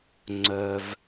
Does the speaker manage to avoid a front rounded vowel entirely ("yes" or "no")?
no